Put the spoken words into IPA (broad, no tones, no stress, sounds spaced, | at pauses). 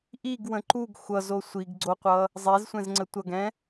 ʔ i ɡ w ə̃ ǃ u ɡ xʷ ʌ z o sʷ i ɡ ɡ͡ǀ o qʷ ʌ | zˤ e z sʷ ɛ̃ z ŋ͡ǀ ə tʷ ʌ ɡ ɛ̃